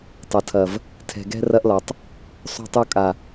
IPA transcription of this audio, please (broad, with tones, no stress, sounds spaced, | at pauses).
tˤ ɐ˨ tʰ ɐ˨ v | tʰ ɛ̤˨ ɡ ɛ̤˦ r ɐ˦ ʔ l ɒ˨ tˤ | sˤ o̤˦ tˤ o˦ kʼ a˨